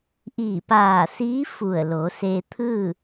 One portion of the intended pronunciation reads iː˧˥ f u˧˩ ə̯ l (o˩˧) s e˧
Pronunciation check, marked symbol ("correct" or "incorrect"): correct